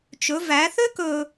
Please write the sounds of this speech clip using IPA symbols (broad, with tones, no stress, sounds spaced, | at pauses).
t͡ʃ ɵ˩˧ v æ˩˧ θ ø˥ k ɵ˧